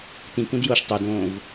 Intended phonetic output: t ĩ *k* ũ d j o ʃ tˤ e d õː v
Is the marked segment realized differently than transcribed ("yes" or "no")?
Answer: no